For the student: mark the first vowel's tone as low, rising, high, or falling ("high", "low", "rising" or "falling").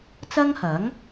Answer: high